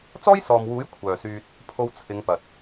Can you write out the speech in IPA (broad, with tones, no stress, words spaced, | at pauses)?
t͡sɔː˥jsɔː˨mwuː˨˥j kʷʰœː˨syː˧t̚ | pʰo˧wt͡sʰɪ˨˧ŋpɐ˨t̚